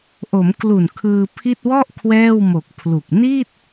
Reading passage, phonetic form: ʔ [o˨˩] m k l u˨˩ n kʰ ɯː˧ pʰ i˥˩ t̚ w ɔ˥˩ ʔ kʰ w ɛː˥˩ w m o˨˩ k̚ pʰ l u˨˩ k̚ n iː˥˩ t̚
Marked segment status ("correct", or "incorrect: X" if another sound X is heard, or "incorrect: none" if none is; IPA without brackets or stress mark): incorrect: o˩˦